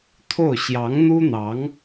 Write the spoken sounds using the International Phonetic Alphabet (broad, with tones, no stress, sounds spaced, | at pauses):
t̪ʰ o˥˩ ʊ̯ ɕ j ɑ˧˥ ŋ n̪ u˥ n̪ ɑ˧˥ ŋ